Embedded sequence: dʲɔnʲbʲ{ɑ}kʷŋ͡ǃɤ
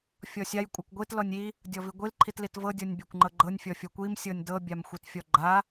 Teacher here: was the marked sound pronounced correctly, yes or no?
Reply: no